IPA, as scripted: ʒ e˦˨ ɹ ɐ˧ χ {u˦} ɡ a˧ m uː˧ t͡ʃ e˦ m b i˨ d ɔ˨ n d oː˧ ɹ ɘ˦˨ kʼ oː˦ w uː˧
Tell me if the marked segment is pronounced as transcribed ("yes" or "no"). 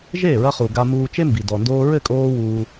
no